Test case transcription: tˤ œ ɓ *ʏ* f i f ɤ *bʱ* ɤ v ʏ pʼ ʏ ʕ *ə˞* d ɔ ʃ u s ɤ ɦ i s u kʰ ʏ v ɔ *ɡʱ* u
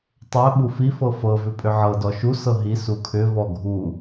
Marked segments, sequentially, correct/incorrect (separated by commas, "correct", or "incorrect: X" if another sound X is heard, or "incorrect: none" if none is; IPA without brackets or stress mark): incorrect: u, incorrect: f, incorrect: ɤ, correct